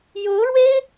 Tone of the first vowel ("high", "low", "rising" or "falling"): rising